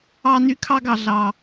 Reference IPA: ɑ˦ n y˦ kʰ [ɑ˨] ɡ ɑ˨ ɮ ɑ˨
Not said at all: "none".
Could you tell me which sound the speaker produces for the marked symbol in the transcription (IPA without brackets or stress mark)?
ɑ˦